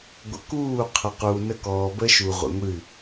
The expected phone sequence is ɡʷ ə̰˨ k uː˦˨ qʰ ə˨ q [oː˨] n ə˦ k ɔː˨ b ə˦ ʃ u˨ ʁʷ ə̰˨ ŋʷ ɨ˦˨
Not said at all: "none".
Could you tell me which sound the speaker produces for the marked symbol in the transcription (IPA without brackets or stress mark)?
uː˨